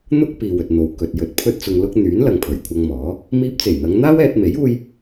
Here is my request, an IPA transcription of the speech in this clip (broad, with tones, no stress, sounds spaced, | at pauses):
n̪ ʊ˥ k̚ p iː˨ w ɵ˨ t̚ n̪ o˨ w k ɵ˨ t̚ j ɵ˨˥ t̚ pʰ ɵ˥ t̚ t͡s ʊ˧ ŋ l ʊ˥ k̚ n̪ yː˨˥ n l ɐ˨ ŋ pʰ ɵ˨˩ ɥ kʷʰ ɐ˧ ŋ m ɔː˨˥ | m iː˧ p̚ t͡s e˨˩ j n̪ ɐ˨˧ ŋ n̪ aː˥ w ɛː˧ t̚ m e˨˥ j uː˥ j